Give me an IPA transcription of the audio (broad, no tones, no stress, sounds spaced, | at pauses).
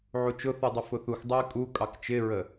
ʕ u t͡ʃ ʊ θ u dˤ ʊ f ʊ θ u x dˤ ɛ ɪ̯ kʼ u kʼ ɑ k t͡ʃ ɪ ɹ ə